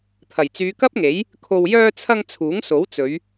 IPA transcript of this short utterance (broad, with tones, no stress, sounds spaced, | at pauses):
t̪ʰ ɐ˨˩ j t͡s yː˨˧ k ɐ˥ p̚ ŋ e˨˥ j | kʰ o˨ w j œː˧ t͡sʰ ɐ˧ ŋ t͡sʰ uː˨˥ ŋ s o˨˥ w t͡s ɵ˨˧ ɥ